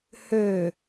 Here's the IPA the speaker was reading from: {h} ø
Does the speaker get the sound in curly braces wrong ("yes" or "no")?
no